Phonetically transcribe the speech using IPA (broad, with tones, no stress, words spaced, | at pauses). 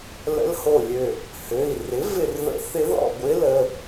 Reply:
lə̰˧˥lho˧˩lʲø˧˩ | hø˩˧˩i̯ rɪ˩˥ vɪ˧˩rðə̰˧˥θɪ˧˥ ðɔ̰˧˩ɡʷɪ˧˥lə˩˧˩